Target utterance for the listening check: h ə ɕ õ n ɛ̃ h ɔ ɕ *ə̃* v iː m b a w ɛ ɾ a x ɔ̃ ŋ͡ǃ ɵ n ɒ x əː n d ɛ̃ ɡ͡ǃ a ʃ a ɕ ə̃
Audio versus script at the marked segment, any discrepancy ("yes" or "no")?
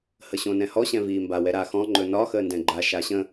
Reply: yes